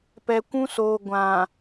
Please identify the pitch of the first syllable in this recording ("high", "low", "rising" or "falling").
low